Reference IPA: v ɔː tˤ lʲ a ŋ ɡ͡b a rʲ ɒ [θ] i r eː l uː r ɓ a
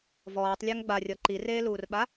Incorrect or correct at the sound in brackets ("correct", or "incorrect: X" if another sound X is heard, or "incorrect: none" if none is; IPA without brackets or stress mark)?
incorrect: ǃ